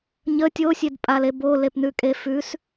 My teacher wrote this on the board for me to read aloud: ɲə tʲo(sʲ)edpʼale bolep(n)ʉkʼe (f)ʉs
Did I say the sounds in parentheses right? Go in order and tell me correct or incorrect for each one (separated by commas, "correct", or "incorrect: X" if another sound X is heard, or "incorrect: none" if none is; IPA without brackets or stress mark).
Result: correct, correct, correct